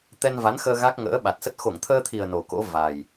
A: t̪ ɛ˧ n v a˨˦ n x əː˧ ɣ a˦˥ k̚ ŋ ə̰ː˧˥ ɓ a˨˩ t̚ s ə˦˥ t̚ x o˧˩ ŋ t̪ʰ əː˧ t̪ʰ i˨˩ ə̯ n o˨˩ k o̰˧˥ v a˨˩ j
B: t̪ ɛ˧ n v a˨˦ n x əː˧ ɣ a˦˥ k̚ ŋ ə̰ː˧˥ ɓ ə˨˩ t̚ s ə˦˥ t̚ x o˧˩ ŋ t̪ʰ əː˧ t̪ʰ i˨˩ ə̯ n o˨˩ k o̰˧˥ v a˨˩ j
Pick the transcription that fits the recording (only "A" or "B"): A